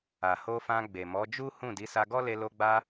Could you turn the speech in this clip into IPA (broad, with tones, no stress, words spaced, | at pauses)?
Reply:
a˨ho˧fã˧ ɡ͡be˨mɔ˨˦d͡ʒu˦ hũ˦˨ di˨˦sa˧ɡɔ˦ le˧lo˧ɡ͡ba˧